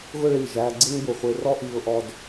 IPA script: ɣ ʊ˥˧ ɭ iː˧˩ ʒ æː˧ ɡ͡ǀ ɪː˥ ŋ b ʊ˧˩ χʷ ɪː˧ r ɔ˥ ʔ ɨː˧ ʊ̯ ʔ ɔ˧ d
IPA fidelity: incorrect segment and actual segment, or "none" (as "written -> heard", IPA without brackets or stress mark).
ɨː˧ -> iː˧